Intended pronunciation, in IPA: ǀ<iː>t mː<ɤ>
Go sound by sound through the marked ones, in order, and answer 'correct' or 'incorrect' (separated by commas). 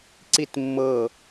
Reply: incorrect, correct